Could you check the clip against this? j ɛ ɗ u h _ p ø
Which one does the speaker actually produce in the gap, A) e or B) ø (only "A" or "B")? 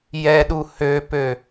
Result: B